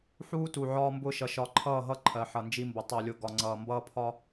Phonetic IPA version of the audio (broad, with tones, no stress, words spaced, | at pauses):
ħuː˦tu˨ ʕɒː˦mbʊː˦ʃʌ˨ ʃɒ˨ǃʰʌː˦˨ɦʌ˦ ǃʰɜ˨ħʌ˨nd͡ʒi˦mbʊ˨ tˤɜ˨lʲʊ˨ ɡɒ˨ŋ͡ǀʌː˨ mbʌː˦pʰɒ˦